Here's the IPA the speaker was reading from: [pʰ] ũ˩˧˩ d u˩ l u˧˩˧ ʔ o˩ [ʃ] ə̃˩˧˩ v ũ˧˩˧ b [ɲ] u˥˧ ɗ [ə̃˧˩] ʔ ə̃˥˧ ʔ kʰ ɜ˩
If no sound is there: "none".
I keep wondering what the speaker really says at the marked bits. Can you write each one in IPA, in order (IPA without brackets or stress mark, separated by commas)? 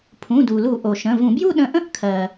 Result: pʰ, ʃ, j, ə̃˧˩